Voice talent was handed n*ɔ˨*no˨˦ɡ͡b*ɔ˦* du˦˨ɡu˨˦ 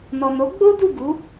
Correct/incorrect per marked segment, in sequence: correct, incorrect: o˦

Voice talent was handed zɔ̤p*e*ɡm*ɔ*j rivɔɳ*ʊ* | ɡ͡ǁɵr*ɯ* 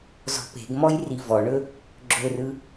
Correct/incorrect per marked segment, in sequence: incorrect: e̤, correct, incorrect: ɵ, correct

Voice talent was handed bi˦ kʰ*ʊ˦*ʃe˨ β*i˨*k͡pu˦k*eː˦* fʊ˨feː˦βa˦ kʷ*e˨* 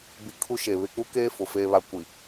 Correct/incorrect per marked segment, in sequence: incorrect: u˦, incorrect: ɪ˨, correct, incorrect: i˨

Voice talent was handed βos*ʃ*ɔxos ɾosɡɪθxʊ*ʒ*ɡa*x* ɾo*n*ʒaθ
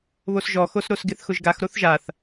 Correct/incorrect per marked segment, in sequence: incorrect: ʒ, correct, correct, incorrect: θ

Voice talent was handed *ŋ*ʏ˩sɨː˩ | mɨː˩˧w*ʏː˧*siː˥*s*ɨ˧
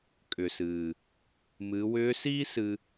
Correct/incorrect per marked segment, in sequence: incorrect: kʼ, incorrect: ʏː˧˥, correct

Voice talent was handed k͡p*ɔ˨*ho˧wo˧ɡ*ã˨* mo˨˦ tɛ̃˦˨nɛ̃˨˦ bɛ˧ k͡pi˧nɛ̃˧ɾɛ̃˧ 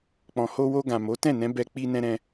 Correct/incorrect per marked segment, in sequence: incorrect: ɔ̃˨, correct

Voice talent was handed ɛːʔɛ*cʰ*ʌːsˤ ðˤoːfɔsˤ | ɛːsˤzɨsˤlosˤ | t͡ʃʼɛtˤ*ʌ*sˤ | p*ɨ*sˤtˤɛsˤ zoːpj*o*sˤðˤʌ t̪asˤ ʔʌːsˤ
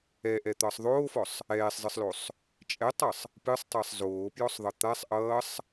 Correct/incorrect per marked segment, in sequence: incorrect: t̪, correct, correct, incorrect: ɔ

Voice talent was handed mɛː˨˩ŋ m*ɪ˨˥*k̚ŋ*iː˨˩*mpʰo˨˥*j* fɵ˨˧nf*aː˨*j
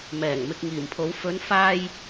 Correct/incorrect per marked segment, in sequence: incorrect: ɪ˨, correct, incorrect: w, incorrect: aː˧

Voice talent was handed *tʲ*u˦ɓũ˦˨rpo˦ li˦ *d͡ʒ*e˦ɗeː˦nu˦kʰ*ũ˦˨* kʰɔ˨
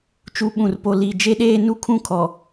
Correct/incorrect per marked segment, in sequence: incorrect: t͡ʃ, correct, correct

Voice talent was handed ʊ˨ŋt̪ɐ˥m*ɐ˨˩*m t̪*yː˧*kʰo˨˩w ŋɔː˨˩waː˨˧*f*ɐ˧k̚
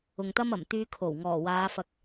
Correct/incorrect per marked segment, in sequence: correct, correct, correct

